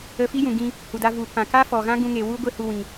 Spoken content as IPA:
ə˧ f i˦ j ũ˨ ɡ ĩ˧ | h u˨ d a˧ v u˨ p ã˨ k a˦ f ɔ˨ ɣ ã˦ ɡ ũ˧ ŋ e˨ w u˦ ɡʷ e˦ h u˧ w ĩ˨

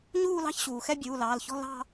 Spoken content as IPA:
ɲ uː˥˧ l ɑ̤˥˧ ç ɕ uː˩ x ɛ˥˧ bʲ uː˩˧˩ l ɑː˩˧˩ l ç ɔ̤˥˧ l ɑ̤˥˧

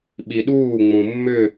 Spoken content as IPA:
ɓ i ɗ uː ŋ͡m ũ mː ʏ

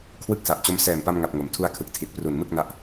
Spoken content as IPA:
kʰ w ɯ˦˥ k̚ s a˨˩ ʔ t͡ɕ o˦˥ m s ɛː˨˩ m p a˧ m ŋ a˨˩ p̚ ŋ o˩˦ m tʰ u˧ a̯ kʰ ɯ˨˩ k̚ tʰ i˨˩ t̚ p r u˨˩ n m ɯ˥˩ k̚ n a˦˥ ʔ

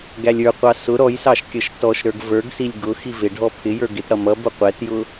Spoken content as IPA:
ɡ æ lʲ ə˞ qʷ ɑ s ʊ ɾ ɔ j s ɑ ʃ kʲ ʌ ʃ t ɔ ʃ ɾ ə˞ ɡ v ə˞ ɡ s i lʲ ɡ ʊ x i v ɪ ɖʱ ɔ pʰ ɪ j ə˞ ɡ ɪ t ɽ ʌ m ʌ b ʊ qʷ ɛ t j ʊ

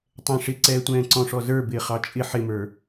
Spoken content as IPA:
tˤ ɛ̃ ʂ ɪ ǀ ɛː tʷ ɛ̃ː ǀ ɔ̃ ʂ ɔ z ə˞ b ɪː χ ɑ t͡ʃʼ ɪ ħ ɪ m ə˞

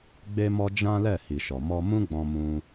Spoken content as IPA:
ɡ͡b e˧ m ɔ˧ d͡ʒ ã˦ l ɛ˦˨ h i˨ ʃ ɔ˨ m ɔ˧ m ũ˦ ɡ͡b ɔ̃˧ m ũ˧

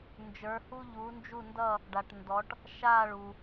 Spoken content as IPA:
n d͡ʒ ə˞˧˥ h u˥ ʎ u˧˥ n d͡ʒ u˥˧ n d ʌ˥˧ | ɖ a˨ ʈ n d ɔ˧˥ ʈ | ʃ a˥˧ ɭ u˨

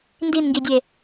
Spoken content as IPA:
n d i n ŋ ɡ i dʲ e

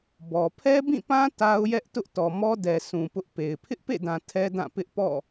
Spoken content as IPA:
b ɔ˨ pʰ ɛ˦ b ĩ˦˨ p ã˦ t a˦ ʊ̯ j ɛ˦ ʔ t ʊ˦ ʔ t ɔ˨ m ɔ˦ d ɛ˨ s ũ˨ p ʊ˦ ʔ p e˨ ɪ̯ pʰ ɪ˦ ʔ p ḛ˦˨ d ã˨ tʰ ɛ˦ d ã˦˨ p ɪ˦ ʔ p ɔ̰˦˨

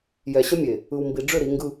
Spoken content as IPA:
j ɛ˨ ɕ ə˦ mʲ e˨ | ɯ˨ w m b i˨ ɖ͡ʐ ʏ˦˨ ɾ i˨˦ ŋ ɡ ɯ˦

